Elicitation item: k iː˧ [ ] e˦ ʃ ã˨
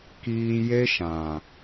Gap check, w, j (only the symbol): j